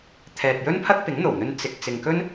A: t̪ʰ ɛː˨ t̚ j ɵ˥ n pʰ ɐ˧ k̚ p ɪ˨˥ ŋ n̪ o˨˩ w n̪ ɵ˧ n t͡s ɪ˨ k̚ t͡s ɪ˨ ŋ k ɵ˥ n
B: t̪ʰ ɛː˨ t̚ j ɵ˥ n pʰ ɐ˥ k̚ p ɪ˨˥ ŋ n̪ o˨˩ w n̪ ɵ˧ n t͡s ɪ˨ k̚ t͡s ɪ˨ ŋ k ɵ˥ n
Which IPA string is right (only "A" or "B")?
B